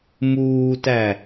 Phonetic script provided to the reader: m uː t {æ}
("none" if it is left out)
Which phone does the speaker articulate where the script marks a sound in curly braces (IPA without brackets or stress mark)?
æ